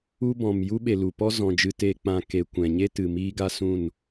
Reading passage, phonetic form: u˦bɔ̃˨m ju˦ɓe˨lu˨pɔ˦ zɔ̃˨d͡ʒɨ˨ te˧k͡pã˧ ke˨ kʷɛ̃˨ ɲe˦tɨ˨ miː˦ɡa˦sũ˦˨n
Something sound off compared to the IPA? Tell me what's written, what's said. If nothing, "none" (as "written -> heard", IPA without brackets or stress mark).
none